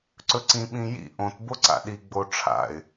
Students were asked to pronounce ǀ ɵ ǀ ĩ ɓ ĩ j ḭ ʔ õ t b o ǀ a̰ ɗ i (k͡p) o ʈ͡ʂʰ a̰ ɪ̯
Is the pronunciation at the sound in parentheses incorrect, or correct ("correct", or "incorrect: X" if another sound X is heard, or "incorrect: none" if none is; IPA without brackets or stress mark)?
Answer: incorrect: ɡ͡b